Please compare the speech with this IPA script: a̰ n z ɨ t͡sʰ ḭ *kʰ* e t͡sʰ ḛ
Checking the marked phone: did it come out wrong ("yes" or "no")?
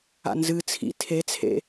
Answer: yes